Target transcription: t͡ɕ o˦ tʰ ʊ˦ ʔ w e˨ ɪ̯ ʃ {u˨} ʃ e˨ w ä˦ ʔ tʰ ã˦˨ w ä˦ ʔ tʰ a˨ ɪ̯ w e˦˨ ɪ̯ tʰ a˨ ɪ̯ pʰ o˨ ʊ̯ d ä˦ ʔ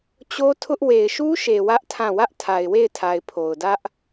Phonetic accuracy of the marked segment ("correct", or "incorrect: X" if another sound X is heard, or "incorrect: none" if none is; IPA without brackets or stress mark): incorrect: u˦